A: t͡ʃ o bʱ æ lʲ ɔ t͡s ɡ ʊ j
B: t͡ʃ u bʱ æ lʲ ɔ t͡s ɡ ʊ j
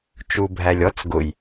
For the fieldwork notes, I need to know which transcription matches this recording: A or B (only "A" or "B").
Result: B